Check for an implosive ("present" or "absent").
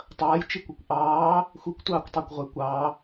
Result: absent